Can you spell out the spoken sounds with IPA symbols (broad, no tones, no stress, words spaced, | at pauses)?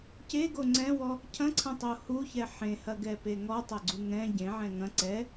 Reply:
ceɡo ŋ͡ǀɛ̃wɔ | cʰɐ̃ǀʰɐ̃tˤo huçɛ ħẽhɐɡɛpe ŋɔtˤɐɡ͡ǀu ŋɛ̃ ɟẽʕɛ̃ ŋɐ̃ ǀɛ